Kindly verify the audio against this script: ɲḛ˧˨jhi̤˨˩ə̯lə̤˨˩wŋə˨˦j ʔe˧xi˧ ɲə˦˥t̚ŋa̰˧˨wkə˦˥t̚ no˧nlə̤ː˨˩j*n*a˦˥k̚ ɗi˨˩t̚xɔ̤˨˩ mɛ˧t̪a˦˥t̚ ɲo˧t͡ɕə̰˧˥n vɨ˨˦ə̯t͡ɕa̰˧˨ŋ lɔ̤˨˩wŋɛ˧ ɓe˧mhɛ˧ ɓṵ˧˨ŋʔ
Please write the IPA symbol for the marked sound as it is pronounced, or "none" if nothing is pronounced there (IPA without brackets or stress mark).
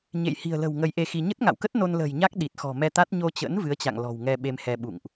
ɲ